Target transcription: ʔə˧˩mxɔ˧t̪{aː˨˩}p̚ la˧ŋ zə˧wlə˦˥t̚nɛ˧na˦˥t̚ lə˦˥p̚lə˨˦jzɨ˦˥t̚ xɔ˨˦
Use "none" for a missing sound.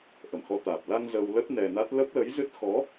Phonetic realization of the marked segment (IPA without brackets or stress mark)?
aː˨˩